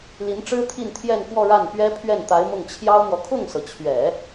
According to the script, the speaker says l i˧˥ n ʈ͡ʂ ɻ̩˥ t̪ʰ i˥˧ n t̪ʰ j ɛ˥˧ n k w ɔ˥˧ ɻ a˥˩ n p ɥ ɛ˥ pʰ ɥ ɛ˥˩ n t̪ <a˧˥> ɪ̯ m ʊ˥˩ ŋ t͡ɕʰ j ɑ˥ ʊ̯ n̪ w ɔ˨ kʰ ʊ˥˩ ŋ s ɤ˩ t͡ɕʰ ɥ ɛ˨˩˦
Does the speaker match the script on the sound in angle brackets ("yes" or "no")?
yes